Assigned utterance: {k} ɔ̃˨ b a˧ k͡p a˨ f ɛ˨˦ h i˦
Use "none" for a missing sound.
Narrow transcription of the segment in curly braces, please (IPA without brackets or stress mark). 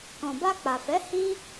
k